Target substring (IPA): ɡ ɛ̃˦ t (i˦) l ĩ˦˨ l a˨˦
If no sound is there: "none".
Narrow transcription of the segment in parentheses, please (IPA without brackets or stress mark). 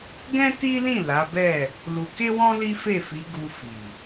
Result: i˦